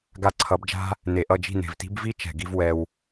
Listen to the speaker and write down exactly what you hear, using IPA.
ɡa˧ǀʰʌ˨˦bd͡ʒa̤˦ | ne˨ʔʌ˦˨d͡ʒi̤˦˨ ne̤˨vti̤˦b vi˦ t͡ʃɛ̤˨ɡi˦v wɛ˧w

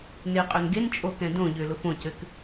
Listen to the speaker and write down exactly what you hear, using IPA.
nɪqʼʏn ɡent͡ʃʼo kɛ̃dõʎʏː lʊfõcɘk

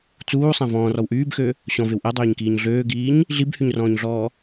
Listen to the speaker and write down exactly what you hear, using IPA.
t͡suːsˤæ̃ vɔ̃ːrɔw ʔyːbxø | ɕɔ̃vew ʔɛdˤøːɲkiːɲ ɮøːɡiːɲ | ɮibhyɲrɔ̃ːɲɮɔː

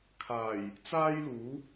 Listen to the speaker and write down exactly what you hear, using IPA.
kʰaː˨˩j | t͡saː˥jluː˨˥

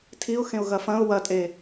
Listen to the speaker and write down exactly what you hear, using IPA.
tʰiʊ̯xẽʊ̯ ɣɐfɐ̃ʊ̯ wɐtʼe

